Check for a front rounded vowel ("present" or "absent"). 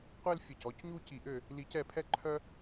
present